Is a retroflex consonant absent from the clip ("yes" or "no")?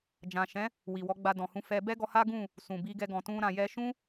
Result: yes